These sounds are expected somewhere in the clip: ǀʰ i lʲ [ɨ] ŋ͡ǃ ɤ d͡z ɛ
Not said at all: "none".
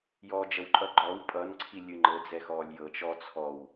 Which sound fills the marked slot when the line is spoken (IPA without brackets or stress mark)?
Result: ɨ